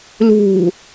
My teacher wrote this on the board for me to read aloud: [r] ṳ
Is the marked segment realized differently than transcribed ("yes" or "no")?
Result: yes